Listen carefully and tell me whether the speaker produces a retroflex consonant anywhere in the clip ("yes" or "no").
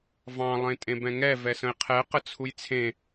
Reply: no